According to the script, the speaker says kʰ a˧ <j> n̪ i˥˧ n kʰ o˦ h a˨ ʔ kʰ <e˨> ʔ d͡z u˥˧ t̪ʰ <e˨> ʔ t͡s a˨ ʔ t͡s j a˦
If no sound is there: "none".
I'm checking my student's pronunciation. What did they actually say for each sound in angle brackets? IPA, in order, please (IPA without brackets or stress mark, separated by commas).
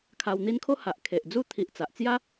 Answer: w, e˨, i˨